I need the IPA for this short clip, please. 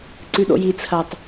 ǀ ʉ ɗ o̰ j i t͡sʰ ɐ tˤ

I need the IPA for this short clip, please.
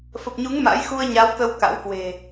f ə˨˩ p̚ ɲ u˨˦ ŋ m a̰˧˥ j x u˧ ə̯ ɲ a˨˦ w t̪ ə˧ w k a̰˧˥ w k w e̤˨˩

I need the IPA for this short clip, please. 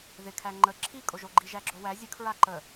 ð ɪ kʰ æ ŋ͡ǃ ə ǁʰ i kʼ o ʒ o ɡ͡ǃ i ʒ æ ɡ͡ǁ o w æ zʲ ə kʰ ɹ a ǃ ə

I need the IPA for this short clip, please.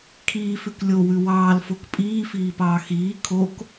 kʰ iː f ʉ k lʲ o w ʉ w ɑː l f o k pʼ iː f iː p ɑː x iː kʰ o k

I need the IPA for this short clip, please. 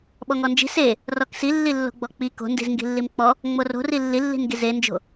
ɓ ɔ ŋ ɔ n d͡ʒ i̤ s e | r ɔ k s i lː i lː o̤ ɡ͡b ɔ k͡p i k o̤ n d i̤ z ŋ ɡ i̤ lː i m k͡p ɔ | ŋ͡m o r o̤ r i lː i lː i̤ n ɡ i z e n d͡ʒ o̤

